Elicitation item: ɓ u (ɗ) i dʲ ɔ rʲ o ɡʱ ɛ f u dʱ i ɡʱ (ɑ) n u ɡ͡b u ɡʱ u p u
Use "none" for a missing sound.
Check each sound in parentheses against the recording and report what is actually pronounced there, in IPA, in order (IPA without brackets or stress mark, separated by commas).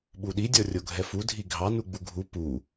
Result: ɗ, ɑ